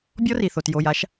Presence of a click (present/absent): absent